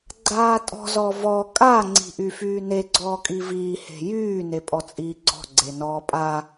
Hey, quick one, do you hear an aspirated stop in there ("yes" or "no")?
no